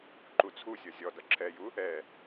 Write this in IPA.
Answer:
ǃ u t͡sʰ u sʲ ʌ zʲ ɔ d ʌ ǁʰ ɛ j u | ɛ

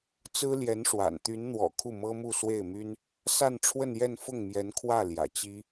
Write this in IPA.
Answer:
t͡s ɹ̩˥ l j ɛ˧˥ n ʂ w a̰˨˩ n t̪ y˧˥ n n̪ w ɔ̰˨˩ kʰ u˥˩ m ɤ˥ m u˥˧ s w e˥˩ ɪ̯ m y˥ n | s a˥˧ n ʈ͡ʂʰ w ə˥˧ n j ɛ˥˧ n f ʊ˥˩ ŋ m j ɛ˧˥ n kʰ w ä˥˩ l j ä̰˨˩ t͡ɕ i˥

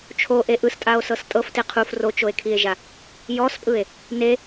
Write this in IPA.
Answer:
t͡ʃʰ o ʔ e ʔ ɯ s tʼ a o̯ s ɤ s tʼ ɤ f t e qʰ u f r o t͡ʃ o e̯ kʰ i e̯ ʒ a | j ɔ s pʼ ɯ e̯ | n e

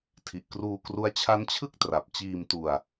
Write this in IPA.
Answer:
tʰ i˨˩ ʔ k r uː˧ k r u˦˥ a̯ t͡ɕʰ a˦˥ n t͡ɕʰ ɯ˥˩ k̚ t r a˨˩ p̚ t͡ɕ iː˧ m t u˧ a̯

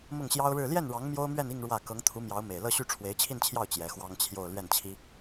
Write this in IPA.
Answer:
m ʊ˥˩ ŋ ɕ j ɑ˥ ʊ̯ ɻ ɻ̩˥˧ l j ɛ˥˩ n ɻ ɑ˧˥ ŋ m j o˥ ʊ̯ m ɥ ɛ˥˧ n i˥˧ ŋ ɻ w ä˥˩ k ɤ˧˥ ŋ t̪ʰ u˧˥ m j ɑ˧˥ ʊ̯ m e˨˩ ɪ̯ l ɤ˥˧ ɕ y˥˩ ʈ͡ʂʰ w e˧˥ ɪ̯ t͡ɕʰ i˥˧ n t͡ɕʰ j ɑ˥˩ ʊ̯ t͡ɕ j ɛ˧˥ x w ɑ˥ ŋ t͡ɕʰ j o˥˧ ʊ̯ l ɥ ɛ˥˩ n t͡ɕʰ i˥

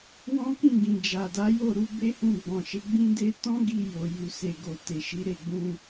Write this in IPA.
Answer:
w ɔ̃˦ k ĩ˦˨ ɡ ĩ˨ d͡ʒ a˨ d a˨˦ j o˦˨ ɾ u˨˦ b e˦ h ũ˦˨ ɡ͡b ɔ̃˨ ʃ e˨˦ ɡ͡b ĩ˦ d e˦ t ɔ̃˦ ɡ i˧ j o˨ j u˨ s e˨ ɡ o˨ t e˨ ʃ i˨˦ ɾ e˦˨ ɡ͡b ũ˧

